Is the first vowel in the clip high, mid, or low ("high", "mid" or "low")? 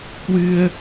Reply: high